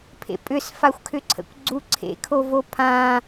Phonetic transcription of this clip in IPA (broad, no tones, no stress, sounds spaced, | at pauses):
pʰ ḛ pʼ ʏ s f a xʷ kʰ ʏ ǀʰ ə̰ kʷ ɡ͡ǀ u ǀʰ ḛ kʰ o v o pʰ ã